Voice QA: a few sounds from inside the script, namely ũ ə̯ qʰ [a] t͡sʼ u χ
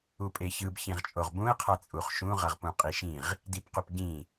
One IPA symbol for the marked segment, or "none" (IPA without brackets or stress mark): a